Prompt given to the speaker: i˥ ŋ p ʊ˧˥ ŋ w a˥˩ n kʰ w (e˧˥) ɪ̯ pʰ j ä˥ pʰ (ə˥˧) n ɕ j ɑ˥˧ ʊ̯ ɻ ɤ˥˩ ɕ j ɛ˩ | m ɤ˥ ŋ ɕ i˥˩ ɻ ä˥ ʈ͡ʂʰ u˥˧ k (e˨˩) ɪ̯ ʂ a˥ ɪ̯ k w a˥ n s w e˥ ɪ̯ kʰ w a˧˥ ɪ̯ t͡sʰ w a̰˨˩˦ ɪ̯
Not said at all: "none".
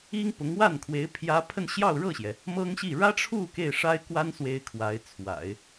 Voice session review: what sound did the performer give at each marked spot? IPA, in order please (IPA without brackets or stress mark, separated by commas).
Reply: e˧˥, ə˥˧, e˥˩